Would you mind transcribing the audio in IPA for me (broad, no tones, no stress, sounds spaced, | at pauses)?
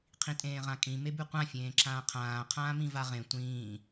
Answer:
qʰ ĩ tʼ ẽː ʁ ã kʼ ĩ m e b ʉ qʷ ã fʲ ẽː ǁ ãː qʰ ãː qʰ ãː m ĩ v a ʁ ẽ tʷ ĩː